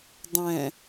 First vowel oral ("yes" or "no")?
no